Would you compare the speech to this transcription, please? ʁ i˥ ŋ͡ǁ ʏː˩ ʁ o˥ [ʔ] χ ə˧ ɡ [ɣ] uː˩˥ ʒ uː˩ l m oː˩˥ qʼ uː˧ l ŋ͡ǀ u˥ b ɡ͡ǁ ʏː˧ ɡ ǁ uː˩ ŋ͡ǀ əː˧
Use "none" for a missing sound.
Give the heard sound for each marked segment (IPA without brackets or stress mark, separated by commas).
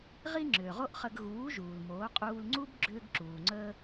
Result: ʔ, ɣ